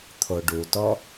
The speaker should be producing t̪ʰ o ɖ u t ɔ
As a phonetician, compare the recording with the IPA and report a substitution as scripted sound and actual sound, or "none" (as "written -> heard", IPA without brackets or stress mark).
none